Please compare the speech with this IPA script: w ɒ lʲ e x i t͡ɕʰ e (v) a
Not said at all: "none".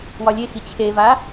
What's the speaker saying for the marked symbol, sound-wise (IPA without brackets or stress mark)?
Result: v